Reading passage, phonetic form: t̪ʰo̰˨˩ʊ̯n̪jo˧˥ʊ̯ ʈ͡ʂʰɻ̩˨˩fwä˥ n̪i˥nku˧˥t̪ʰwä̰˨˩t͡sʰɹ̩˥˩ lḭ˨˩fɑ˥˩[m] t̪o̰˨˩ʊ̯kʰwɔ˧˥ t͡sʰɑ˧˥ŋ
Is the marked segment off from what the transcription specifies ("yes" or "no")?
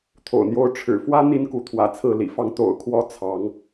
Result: yes